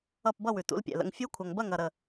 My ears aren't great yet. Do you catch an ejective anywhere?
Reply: no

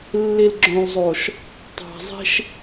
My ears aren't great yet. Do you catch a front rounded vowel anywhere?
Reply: no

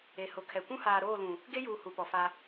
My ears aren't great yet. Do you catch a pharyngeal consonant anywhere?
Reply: no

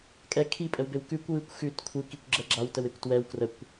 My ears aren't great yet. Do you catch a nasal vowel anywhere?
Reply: no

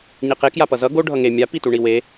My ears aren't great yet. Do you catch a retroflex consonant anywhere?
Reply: yes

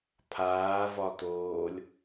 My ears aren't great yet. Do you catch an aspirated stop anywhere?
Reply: yes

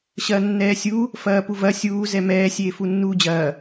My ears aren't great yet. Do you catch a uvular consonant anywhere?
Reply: no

